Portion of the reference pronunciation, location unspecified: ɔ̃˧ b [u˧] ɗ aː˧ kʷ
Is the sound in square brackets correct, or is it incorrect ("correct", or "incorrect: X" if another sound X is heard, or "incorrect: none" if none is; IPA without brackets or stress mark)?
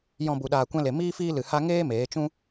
correct